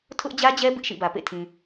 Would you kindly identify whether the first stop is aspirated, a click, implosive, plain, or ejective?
aspirated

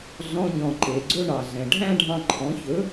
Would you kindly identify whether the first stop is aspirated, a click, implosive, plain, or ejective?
click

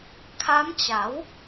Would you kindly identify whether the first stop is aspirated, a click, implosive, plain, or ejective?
aspirated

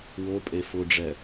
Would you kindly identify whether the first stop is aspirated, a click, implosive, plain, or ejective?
ejective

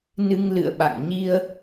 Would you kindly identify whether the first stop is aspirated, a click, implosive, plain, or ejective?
implosive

